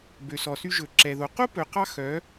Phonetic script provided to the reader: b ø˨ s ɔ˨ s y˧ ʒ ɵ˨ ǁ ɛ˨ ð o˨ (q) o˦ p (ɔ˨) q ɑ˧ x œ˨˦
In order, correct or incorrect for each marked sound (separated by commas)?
correct, incorrect